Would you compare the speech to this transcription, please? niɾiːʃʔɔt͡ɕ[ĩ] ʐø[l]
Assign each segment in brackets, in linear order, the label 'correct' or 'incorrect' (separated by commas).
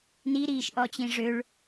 correct, incorrect